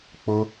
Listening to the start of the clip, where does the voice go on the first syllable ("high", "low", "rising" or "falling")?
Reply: high